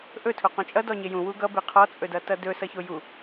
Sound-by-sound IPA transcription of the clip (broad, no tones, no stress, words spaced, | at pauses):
ʔɵtʰoqõ t͡ʃʼʌdɔ ɲejũ wuɡʌbe qʰɔt͡sʼɵdʌtʌ dɵ sʌçoju